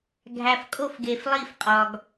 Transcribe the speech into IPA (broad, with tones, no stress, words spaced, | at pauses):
ɡʱæ˨fkʼo˦˨fɡe˨f lˠi˦˨fqʼɒ˨ɡ